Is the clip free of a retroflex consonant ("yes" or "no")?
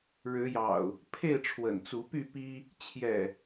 no